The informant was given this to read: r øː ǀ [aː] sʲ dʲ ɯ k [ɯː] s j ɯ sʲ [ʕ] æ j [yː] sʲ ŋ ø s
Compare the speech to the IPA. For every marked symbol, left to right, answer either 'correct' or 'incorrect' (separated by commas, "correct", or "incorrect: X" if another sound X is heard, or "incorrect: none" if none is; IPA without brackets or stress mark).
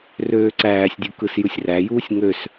incorrect: æː, incorrect: ɯ, incorrect: r, incorrect: uː